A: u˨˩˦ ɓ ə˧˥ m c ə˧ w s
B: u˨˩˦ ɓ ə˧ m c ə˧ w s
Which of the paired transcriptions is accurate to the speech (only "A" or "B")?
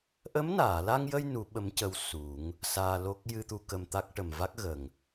A